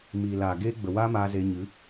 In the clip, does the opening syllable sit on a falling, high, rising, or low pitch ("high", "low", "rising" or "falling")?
low